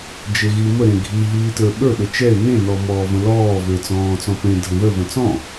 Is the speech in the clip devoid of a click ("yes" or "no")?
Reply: yes